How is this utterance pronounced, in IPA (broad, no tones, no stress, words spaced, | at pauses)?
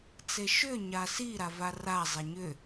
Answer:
t͡seʃʏ ɲasi ɾavara zˤeɲʏ